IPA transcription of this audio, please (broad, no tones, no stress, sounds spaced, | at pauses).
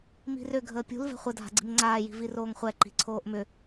m i̤ r ʏ ɡʱ əː pʲ ṳ l v ɛ̤ χʷ ə dʱ a̤ ɡ͡ǀ i̤ m ŋ͡ǀ aː j i̤ v i r oː ŋ χʷ ɛ ǃ i̤ ǀʰ oː ʔ m ʏ